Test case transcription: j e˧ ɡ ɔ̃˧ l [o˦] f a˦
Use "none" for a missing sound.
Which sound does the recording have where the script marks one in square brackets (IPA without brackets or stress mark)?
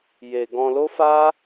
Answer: o˦